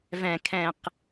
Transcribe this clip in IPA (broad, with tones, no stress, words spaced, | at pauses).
vɛ̃˥˧kʰɛ̃˥˧q